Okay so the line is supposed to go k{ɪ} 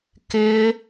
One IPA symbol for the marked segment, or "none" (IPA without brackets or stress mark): ɪ